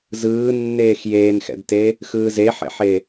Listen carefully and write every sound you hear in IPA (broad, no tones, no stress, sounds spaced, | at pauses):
z ɯː nː eː x j eː n x ɛ̰ d t e | x ɯː z e ħ ɛ̰ ħ e